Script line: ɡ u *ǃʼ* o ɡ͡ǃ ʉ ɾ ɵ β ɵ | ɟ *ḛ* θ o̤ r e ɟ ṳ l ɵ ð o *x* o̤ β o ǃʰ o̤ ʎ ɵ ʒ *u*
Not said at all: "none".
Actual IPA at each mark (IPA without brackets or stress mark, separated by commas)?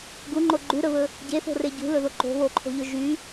ŋ͡ǃ, e, ǃ, y